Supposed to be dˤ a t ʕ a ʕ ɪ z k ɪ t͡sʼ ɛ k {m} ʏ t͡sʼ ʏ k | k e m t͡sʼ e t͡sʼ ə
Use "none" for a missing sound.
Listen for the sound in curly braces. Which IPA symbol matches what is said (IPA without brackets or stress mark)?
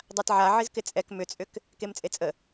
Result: m